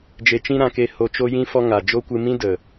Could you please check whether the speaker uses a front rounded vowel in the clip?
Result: no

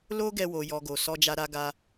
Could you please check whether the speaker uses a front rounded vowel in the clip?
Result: no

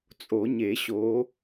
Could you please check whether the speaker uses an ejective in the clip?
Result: yes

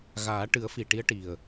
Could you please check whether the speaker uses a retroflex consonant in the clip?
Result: yes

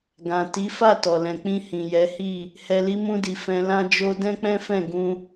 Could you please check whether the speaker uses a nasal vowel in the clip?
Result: yes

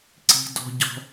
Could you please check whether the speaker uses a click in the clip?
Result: yes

